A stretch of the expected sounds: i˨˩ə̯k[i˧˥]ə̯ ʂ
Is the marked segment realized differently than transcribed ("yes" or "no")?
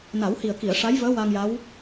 yes